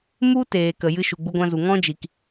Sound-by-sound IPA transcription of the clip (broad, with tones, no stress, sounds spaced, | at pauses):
m u˦ t eː˨ k ə˨ j ɨ˧ ʃ u˨ ɡ͡b u˧ ɡʷ ã˧ z u˨ ŋ ɔ̃˦ d͡ʒ i˨ k